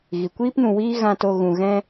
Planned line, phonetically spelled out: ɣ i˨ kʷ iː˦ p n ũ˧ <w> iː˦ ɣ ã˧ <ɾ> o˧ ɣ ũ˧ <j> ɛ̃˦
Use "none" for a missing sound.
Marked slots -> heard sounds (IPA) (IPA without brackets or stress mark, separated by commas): w, t, ɣ